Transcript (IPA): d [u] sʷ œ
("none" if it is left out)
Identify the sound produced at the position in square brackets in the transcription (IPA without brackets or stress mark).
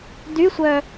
y